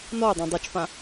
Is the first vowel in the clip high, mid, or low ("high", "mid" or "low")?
mid